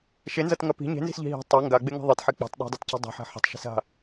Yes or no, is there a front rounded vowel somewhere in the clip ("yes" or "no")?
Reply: no